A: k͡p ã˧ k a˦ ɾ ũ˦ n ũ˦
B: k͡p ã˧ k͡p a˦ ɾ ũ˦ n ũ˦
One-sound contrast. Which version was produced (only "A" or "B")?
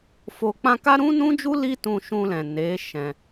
A